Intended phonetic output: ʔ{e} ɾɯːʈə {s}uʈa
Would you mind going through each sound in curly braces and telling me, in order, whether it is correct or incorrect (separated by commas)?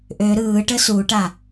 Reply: incorrect, correct